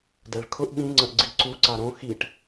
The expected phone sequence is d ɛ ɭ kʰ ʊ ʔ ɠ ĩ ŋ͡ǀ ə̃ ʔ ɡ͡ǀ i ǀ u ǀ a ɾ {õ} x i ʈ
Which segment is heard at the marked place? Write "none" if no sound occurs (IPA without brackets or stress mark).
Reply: õ